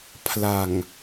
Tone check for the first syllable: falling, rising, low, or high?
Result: low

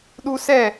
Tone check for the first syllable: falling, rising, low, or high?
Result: high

